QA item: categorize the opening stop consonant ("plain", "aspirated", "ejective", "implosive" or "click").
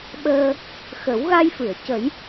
implosive